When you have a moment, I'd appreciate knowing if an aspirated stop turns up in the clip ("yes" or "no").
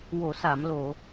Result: no